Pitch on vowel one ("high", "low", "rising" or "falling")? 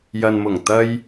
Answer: low